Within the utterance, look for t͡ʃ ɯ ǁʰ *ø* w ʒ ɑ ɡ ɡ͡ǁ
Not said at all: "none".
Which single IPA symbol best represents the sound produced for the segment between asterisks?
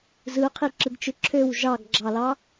ø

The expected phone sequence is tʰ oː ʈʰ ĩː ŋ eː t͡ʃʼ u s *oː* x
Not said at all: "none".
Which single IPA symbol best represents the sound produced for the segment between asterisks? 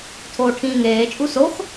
o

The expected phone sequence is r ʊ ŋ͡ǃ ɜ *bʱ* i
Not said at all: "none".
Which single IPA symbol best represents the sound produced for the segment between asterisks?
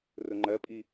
pʼ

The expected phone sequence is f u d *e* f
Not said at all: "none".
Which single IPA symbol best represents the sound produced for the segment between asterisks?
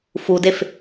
e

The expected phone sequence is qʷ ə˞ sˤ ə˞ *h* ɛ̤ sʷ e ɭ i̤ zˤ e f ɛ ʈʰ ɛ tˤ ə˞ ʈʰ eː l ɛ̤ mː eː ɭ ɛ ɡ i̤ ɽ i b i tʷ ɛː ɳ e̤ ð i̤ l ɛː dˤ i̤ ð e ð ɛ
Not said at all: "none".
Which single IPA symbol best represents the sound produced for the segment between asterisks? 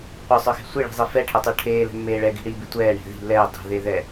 x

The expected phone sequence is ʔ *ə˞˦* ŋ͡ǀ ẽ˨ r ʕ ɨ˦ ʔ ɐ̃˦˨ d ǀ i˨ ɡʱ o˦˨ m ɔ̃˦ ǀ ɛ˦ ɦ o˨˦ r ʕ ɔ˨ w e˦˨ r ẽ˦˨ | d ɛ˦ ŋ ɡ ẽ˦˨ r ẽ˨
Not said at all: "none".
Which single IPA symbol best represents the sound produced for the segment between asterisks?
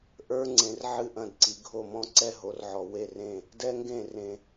ə˞˦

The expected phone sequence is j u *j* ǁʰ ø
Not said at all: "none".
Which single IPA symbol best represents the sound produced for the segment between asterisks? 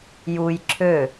j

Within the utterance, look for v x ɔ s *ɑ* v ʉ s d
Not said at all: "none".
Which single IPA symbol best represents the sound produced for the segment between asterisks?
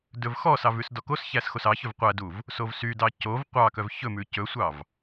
ɑ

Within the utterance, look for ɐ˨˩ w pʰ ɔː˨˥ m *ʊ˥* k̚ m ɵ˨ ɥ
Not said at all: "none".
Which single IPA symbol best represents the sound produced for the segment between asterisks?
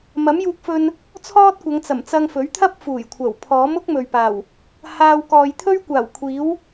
ʊ˥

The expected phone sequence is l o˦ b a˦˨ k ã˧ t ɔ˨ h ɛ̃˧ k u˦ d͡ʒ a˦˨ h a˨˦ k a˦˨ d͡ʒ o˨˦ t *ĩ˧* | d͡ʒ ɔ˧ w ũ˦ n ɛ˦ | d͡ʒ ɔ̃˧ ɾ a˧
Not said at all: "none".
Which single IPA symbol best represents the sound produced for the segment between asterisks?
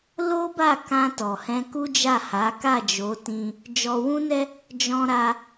ĩ˧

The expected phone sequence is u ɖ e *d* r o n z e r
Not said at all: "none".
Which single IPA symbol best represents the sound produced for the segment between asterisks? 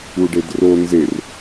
d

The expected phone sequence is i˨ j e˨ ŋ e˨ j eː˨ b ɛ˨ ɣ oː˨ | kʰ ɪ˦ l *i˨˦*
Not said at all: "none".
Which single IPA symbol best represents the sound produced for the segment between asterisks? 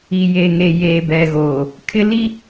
i˦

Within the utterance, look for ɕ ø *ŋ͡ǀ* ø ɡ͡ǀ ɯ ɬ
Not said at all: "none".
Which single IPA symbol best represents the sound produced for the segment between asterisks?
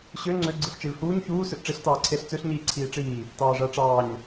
ŋ͡ǀ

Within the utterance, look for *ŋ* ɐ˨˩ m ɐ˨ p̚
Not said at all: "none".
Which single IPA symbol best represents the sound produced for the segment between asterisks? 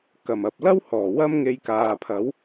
k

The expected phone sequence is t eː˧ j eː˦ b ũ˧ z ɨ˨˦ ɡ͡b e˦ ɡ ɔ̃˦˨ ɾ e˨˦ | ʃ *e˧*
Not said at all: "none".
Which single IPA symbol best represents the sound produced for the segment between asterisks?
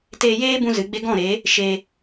e˧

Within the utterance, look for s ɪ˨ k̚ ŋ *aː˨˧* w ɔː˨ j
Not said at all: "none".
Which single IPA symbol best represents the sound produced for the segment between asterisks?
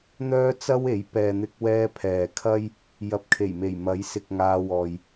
aː˧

